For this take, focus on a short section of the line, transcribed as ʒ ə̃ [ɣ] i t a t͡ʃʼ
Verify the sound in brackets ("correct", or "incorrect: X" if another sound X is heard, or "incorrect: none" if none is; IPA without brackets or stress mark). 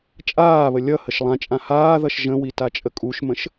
incorrect: w